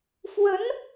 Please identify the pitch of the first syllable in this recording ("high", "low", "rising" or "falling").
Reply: rising